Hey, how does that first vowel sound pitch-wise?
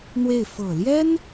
falling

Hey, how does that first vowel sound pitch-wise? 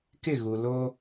falling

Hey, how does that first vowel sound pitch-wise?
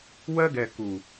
high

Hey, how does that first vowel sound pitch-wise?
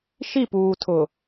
falling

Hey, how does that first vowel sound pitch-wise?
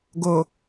low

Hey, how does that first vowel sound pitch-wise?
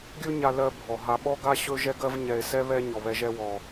high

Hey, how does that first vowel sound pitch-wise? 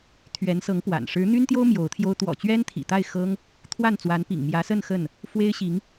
rising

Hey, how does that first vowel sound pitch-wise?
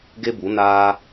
high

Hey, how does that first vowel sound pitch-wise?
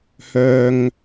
low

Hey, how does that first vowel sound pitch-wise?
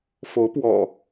rising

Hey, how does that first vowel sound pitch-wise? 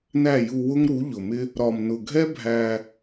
falling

